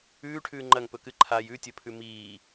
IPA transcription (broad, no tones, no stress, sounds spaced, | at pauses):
ʉː ʈʰ ʉː ŋ͡ǃ ɐ ŋ p ɵ k ɨ ǃʰ a j ʉ tʲ ɵ pʰ ʉ m iː